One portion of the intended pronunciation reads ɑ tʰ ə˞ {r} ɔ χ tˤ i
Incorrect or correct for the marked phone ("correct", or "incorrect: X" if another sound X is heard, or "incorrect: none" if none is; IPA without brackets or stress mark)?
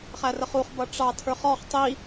incorrect: χ